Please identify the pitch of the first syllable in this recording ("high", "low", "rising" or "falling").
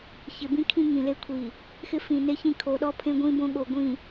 low